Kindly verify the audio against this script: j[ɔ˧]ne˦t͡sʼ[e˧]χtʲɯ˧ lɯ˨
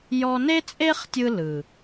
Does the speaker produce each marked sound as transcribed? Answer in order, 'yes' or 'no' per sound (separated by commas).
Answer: yes, no